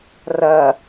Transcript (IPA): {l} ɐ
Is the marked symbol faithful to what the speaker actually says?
no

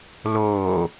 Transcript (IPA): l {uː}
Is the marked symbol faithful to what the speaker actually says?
no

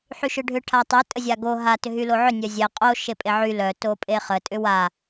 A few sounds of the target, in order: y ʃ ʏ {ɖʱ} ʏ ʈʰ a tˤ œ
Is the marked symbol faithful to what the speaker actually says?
yes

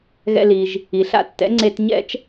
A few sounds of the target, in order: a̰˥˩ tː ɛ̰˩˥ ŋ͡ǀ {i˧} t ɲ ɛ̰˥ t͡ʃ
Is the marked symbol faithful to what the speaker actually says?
no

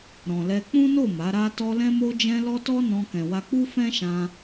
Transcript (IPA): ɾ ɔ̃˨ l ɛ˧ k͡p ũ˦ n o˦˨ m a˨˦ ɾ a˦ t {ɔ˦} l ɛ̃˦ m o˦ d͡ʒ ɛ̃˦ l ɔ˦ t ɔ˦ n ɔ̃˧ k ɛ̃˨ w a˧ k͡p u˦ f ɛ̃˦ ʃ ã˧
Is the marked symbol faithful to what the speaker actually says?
yes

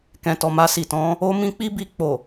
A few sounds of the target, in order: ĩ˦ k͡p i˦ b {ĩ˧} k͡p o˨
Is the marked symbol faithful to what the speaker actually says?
no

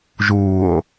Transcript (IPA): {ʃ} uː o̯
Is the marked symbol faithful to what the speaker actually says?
no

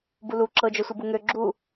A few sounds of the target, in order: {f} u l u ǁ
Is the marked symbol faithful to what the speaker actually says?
no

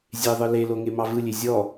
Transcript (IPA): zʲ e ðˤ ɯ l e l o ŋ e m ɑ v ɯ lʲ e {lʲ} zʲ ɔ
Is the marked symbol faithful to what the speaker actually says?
no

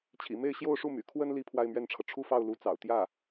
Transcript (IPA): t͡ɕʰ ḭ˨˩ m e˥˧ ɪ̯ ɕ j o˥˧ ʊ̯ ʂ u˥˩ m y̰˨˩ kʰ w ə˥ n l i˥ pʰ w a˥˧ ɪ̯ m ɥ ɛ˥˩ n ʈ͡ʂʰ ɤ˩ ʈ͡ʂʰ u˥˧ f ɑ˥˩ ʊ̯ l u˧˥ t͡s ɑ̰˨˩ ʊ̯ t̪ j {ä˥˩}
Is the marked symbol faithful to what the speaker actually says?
yes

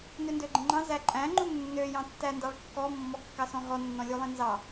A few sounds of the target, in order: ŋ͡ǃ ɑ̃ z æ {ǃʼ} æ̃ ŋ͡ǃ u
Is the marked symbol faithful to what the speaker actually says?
yes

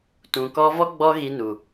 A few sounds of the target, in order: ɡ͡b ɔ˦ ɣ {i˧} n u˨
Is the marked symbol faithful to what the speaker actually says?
yes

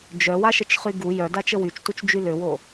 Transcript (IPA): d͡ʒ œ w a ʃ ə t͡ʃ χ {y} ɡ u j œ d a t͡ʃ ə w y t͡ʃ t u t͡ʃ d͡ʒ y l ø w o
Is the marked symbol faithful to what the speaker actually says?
yes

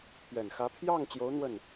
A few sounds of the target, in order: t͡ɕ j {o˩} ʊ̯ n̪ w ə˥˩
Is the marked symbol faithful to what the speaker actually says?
no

